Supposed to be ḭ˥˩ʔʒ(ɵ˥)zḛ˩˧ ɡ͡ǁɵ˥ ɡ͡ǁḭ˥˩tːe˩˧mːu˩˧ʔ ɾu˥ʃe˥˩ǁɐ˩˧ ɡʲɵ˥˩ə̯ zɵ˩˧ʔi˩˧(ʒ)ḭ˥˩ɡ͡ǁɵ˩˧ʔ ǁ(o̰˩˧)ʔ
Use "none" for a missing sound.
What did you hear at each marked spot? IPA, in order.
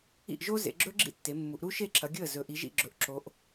o˥, ʒ, o˩˧

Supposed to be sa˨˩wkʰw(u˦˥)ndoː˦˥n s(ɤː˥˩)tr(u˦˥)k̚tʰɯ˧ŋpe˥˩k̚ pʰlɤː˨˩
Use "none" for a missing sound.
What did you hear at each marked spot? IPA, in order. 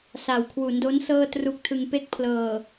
u˩˦, ɤː˥˩, u˦˥

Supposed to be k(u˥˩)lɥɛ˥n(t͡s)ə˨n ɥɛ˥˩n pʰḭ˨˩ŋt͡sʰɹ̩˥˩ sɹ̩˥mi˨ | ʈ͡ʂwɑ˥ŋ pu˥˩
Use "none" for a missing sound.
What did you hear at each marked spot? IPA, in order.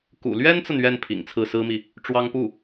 ṵ˨˩, t͡s

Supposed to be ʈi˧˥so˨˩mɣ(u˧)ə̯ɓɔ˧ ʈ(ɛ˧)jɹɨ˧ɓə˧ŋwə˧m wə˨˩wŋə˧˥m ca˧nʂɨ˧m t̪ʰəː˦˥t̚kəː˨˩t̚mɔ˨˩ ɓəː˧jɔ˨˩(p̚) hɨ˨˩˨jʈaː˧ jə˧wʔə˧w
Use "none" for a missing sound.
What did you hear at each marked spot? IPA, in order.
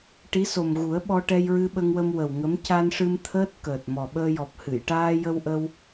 u˨˩˦, ɛ˧, p̚

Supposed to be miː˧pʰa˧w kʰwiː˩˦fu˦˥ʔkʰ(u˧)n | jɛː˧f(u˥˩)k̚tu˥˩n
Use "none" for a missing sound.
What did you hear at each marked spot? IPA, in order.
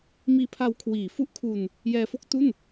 u˧, o˥˩

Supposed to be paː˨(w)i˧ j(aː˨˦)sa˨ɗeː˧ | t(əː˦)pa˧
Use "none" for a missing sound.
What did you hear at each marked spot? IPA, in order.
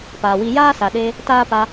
w, aː˦, aː˦

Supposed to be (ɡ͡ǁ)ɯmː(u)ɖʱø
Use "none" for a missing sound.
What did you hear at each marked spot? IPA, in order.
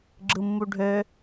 ɡ͡ǁ, u

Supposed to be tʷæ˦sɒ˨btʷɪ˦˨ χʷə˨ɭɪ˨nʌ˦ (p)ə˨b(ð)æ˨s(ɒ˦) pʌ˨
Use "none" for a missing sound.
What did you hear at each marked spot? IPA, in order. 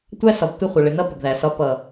p, ð, ɒ˦

